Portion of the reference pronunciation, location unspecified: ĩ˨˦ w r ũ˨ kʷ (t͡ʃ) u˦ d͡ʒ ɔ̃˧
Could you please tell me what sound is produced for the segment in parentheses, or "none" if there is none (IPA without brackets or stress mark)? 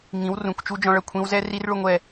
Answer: t͡ʃ